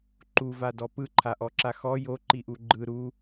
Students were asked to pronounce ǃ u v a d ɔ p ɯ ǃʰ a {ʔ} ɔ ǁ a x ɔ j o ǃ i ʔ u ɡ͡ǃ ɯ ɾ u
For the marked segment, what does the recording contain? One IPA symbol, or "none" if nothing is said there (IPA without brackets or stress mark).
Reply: ʔ